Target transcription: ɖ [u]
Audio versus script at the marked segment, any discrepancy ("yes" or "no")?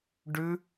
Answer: yes